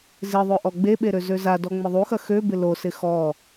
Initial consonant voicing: voiced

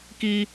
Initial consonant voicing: voiceless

